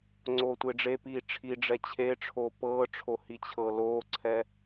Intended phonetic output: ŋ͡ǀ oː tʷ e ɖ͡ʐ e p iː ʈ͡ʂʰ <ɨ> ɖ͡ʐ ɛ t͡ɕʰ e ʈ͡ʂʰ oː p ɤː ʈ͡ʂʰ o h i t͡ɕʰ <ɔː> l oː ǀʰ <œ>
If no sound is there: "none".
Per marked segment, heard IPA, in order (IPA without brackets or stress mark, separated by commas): i, ɤː, ɛ